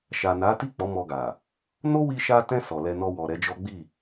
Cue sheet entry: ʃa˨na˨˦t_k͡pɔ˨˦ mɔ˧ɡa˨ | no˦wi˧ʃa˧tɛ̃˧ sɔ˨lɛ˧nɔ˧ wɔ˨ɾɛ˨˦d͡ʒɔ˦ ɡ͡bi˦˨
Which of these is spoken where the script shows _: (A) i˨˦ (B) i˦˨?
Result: B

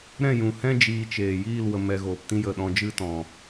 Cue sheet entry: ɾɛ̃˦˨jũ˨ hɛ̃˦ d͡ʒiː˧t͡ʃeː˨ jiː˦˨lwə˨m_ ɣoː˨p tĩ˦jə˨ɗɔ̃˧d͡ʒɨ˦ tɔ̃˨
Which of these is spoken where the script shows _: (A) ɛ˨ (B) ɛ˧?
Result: A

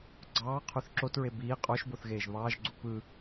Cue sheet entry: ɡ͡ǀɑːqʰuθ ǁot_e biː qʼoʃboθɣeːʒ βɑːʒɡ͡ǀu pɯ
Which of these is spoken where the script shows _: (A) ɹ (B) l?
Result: A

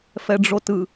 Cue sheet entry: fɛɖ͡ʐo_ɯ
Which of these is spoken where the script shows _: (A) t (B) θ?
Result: A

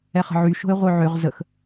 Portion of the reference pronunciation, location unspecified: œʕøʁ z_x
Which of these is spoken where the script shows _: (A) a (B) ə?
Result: B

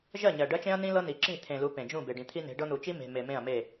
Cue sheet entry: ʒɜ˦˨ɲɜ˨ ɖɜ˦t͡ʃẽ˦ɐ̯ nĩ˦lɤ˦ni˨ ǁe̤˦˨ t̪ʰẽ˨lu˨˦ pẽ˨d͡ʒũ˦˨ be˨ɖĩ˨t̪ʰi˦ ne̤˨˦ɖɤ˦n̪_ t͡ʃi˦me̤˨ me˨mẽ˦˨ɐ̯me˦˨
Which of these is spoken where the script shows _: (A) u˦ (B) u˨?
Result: B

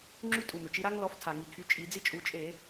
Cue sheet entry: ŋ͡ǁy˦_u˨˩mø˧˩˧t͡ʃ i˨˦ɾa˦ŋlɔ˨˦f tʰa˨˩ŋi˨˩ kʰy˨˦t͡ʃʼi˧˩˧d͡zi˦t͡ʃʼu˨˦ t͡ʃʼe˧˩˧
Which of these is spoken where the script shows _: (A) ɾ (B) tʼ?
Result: B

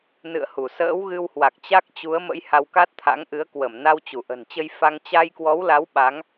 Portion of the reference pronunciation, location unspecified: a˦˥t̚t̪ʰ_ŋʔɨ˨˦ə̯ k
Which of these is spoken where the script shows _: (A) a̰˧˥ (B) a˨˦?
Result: A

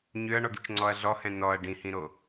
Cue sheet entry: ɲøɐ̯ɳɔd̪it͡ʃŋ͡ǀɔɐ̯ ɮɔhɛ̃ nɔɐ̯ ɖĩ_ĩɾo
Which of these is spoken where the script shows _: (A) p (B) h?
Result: B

